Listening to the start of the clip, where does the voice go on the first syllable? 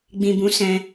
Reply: low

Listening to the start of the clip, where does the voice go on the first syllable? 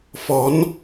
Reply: rising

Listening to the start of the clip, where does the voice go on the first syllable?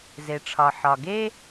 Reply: low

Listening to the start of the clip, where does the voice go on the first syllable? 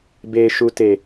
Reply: low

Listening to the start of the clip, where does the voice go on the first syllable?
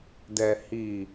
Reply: low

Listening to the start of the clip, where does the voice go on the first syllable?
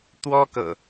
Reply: high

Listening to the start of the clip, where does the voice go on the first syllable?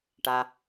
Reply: low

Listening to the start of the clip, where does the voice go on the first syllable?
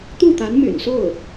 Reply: falling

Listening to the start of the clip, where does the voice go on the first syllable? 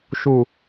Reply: low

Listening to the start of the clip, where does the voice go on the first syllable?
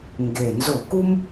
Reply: low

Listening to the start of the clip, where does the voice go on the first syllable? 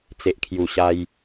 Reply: low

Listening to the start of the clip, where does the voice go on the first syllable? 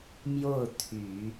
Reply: falling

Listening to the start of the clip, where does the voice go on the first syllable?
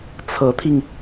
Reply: rising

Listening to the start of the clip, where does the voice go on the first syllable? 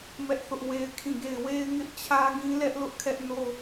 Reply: high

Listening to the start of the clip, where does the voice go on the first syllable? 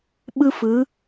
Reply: high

